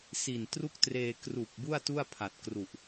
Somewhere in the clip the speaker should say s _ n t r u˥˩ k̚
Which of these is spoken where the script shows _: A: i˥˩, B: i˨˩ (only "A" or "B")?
B